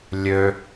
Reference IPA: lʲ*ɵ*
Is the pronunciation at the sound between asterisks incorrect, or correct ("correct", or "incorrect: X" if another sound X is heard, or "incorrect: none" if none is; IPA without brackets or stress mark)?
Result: incorrect: ø